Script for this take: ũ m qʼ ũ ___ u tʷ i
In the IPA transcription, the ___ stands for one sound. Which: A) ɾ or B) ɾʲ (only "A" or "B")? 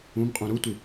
A